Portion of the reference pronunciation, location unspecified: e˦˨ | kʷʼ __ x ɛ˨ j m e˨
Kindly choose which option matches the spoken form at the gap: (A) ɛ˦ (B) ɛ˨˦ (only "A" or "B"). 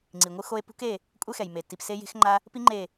A